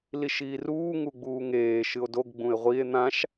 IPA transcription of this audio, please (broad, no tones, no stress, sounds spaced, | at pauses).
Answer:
l i ʃ iː r uː ŋ u ɡ͡b uː ŋ eː ʃ ɨ o̯ d o ɡ ɡ͡b ũ e̯ ʁʷ i e̯ n̪ ã ʃ